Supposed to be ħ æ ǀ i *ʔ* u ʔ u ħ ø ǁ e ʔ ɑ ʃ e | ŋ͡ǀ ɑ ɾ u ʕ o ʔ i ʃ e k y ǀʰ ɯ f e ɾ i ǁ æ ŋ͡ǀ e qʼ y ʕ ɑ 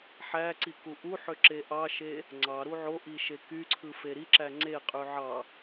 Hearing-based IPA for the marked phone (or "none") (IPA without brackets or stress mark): k